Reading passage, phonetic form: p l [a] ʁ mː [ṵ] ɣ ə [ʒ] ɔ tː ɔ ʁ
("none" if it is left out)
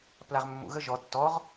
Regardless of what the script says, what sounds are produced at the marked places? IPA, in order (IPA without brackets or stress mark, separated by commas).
a, ṵ, ʒ